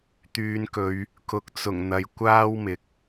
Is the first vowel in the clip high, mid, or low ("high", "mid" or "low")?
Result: high